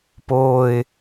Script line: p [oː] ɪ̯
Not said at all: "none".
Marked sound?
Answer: oː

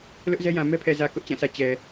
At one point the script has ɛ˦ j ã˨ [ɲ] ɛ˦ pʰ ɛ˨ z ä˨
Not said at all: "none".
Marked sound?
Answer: m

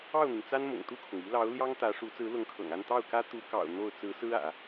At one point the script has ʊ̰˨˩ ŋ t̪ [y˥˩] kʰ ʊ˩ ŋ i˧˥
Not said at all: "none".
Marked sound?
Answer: u˥˩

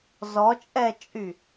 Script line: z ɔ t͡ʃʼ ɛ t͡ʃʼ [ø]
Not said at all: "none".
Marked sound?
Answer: y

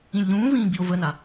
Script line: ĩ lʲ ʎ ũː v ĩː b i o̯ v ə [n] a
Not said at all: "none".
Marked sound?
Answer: n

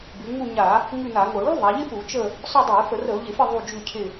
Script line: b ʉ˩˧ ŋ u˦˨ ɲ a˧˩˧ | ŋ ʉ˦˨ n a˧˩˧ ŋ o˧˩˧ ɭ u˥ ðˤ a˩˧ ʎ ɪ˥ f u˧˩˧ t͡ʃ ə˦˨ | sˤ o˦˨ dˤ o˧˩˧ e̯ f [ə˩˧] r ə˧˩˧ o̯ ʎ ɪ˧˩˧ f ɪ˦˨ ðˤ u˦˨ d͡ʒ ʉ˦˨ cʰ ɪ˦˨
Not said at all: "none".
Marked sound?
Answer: ə˧˩˧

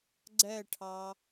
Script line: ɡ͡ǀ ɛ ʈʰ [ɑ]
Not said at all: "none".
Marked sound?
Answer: ɑ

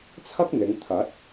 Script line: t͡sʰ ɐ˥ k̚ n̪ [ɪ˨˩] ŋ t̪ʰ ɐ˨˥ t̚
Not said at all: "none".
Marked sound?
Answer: ɪ˨˧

